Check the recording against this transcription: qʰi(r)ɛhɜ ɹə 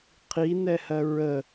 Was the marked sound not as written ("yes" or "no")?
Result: yes